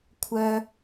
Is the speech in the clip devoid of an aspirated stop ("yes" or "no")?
no